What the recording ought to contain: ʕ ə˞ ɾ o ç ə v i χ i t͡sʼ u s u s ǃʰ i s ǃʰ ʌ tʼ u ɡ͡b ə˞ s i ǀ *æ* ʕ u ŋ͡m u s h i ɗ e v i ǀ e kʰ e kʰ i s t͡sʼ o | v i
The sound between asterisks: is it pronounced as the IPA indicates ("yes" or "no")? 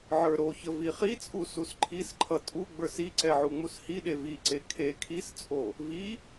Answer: no